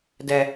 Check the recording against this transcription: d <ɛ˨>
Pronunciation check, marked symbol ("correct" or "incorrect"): correct